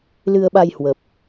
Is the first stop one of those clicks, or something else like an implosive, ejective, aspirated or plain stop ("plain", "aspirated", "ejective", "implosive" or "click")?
implosive